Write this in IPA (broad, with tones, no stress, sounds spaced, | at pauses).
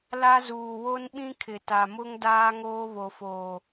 l a˦ z uː˨ w o˦ n ɓ ĩ˦ kʰ ɪ˨ t a˨ m ʊ˦ ŋ d aː˦ ŋ oː˦ β o˨ f oː˨